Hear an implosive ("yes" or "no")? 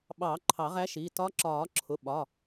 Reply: yes